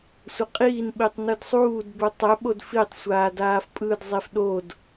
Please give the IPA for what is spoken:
sʷ ɐ qʼ iː n ɓ i tˤ n ɯ d sˤ uː d b u tˤ ɛ ɓ o d f i tˤ sʷ aː d aː f pʼ ɯ d zˤ i f ɗ o d

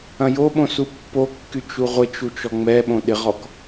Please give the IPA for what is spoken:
ɐ̃ j o ɓ õ s u pː o kː y t͡ʃ u ʁʷ ɪ t͡ʃ u t͡ʃ ɔ ŋ͡m ɛ ɓ õ ɗ ɪ ʁ ɔ k

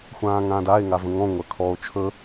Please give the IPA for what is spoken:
xʷ ãː ŋ ãː d a e̯ ŋ a v ə̃ ŋ ɔ̃ ŋʷ ɜ kʰ ɔ o̯ t͡ʃʰ ɵ

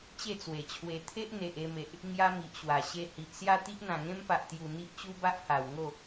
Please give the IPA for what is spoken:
t͡ɕ e˥˧ t͡s w e˨˩ t͡ɕʰ w e˧ t̪ʰ e˦ ʔ n̪ e˨ ʔ e˧ m e˨ ʔ | ŋ j a˦ m i˨ ʔ ɕ w a˨˩ ɕ e˧ h i˨ ʔ s j a˥˧ t̪ i˦ ʔ n̪ ã˨˩ ŋ ẽ˦ m p a˨ ʔ t̪ j u˨˩ n̪ i˦ ʔ t͡ɕ u˦ b a˦ ʔ h a˨˩ w ŋ o˥˧

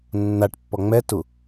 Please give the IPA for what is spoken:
nː a ʈ pː ɔ ŋ͡m ɛ t u

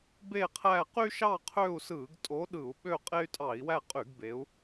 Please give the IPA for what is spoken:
b e˦˨ qʰ æ˦˨ q y˦ ʃ ɑ˦˨ qʰ ø˦˨ u̯ s ɯ˧˩˧ ɡ tʼ o˨˦ ɗ ɯ˧˩˧ u̯ ɓ ø˦˨ qʼ e˦ y̯ tʼ ɑ˧˩˧ i̯ w æ˦˨ qʼ y˧˩˧ ɡ b e˨˦ u̯

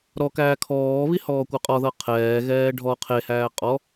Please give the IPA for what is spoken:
ɾ ɔ k æː kʰ ɔː β i h ɔː kʷ ɤ qʼ ɔ ð ɤ qʰ ɛː ɣ ɛː ɖʱ ɔ qʰ e h æː qʼ ɔ

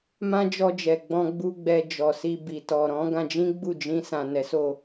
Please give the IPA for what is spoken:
m ã˦ d͡ʒ ɔ˧ d͡ʒ ɛ˨ ɡ͡b ɔ̃˧ ɡ͡b u˦ ɡ͡b ɛ˧ d͡ʒ ɔ˨ s i˧ b i˨ t ɔ˨ ɾ ɔ̃˨˦ ɡ ã˧ d͡ʒ ĩ˦ ɡ͡b u˦˨ d͡ʒ ĩ˧ s ã˨ n ɛ˨˦ s o˦˨

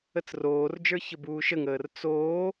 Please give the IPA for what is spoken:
ə t͡s r oː r d͡ʒ ə˞ ç ə b uː ʃ ə ŋ əː r t͡s oː

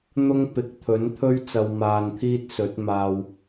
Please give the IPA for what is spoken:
n̪ ʊ˥ ŋ p ɪ˨˥ k̚ t̪ʰ ɵ˨˥ n t̪ʰ ɵ˥ ɥ t͡s ɐ˧ w m aː˧ n t̪ʰ iː˥ t̚ s ɵ˨˥ t̚ m aː˧ w

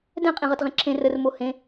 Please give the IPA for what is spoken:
d ɛ̃ qʼ ĩ ʁ ʌ t ʁ ẽ ǁʰ ẽ r ə r m o h ẽ

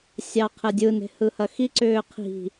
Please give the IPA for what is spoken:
sʲ ɑ qʰ ɛ dʲ ɯ n e̤ h ɯ h ɐ x i ǀ ʏː qʰ i̤

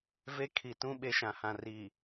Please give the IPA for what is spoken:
v e˦ kʰ i˨ t ũ˦ ɓ e˦ ʃ ã˨ h ã˨ r i˨

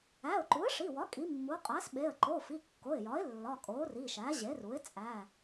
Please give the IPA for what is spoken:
æ˩˧˩ ʊ̯ ǃ u˩˥ ə̯ ʂ i˩˧˩ w ɒ˩˥ kʼ i˩˥ mː u˩˥ qʼ æ˩˥ s ɓ e˩˧˩ ə̯ ǃ o˩˧˩ f i˩˧˩ kː o˩˧˩ ɪ̯ j ɒ˩˥ ɪ̯ lː ɒ˩˧˩ kʼ o˩˥ r i˩˧˩ ʃ æ˩˥ ʑ e˩˥ r u˩˥ ɪ̯ t͡sʼ æ˩˧˩

